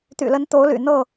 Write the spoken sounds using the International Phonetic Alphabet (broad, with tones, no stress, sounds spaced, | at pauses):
t̪ y̰˨˩ l ə˨˦ n t̪ o˨˦ ʊ̯ l y̰˨˩ n̪ ɤ˥˨